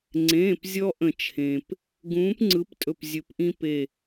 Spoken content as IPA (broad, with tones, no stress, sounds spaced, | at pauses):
ŋ͡ǀ ẽː˩˧˩ p zʲ ɔ˦ ʔ ə̃˨˩˦ t͡ʃʰ ẽ˩ p | ɡ ũː˨˥ p ŋ͡ǀ ɯ˨˥ p tʼ ɵ˦˨ p zʲ ɵ˨˩˦ p ʔ ĩ˦ p e˦˨